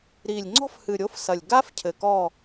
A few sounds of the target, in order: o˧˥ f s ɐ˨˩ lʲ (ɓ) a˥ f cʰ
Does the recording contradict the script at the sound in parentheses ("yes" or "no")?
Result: yes